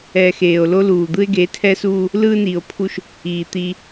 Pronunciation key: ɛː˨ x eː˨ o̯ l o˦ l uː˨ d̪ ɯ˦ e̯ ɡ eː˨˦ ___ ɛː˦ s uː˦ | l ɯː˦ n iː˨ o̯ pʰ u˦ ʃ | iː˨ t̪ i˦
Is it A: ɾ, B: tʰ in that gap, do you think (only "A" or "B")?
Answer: B